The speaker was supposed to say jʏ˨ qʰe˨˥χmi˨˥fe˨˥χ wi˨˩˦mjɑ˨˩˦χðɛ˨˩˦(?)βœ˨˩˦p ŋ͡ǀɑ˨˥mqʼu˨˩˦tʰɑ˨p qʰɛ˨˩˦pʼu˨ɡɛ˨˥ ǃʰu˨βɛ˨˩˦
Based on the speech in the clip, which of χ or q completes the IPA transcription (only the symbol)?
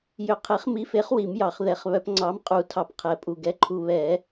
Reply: χ